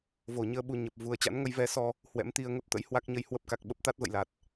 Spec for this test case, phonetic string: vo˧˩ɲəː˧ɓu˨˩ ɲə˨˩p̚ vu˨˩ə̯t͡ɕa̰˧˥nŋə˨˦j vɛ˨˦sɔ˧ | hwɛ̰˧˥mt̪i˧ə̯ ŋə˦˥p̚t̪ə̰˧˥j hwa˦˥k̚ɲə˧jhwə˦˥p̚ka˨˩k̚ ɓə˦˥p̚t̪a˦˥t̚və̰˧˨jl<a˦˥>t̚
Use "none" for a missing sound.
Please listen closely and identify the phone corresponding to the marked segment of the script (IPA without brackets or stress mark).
a˨˩